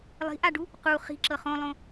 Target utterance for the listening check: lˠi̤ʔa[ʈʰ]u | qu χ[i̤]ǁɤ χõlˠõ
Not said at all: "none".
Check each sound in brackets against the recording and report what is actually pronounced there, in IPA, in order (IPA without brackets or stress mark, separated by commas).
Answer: ɖ, i̤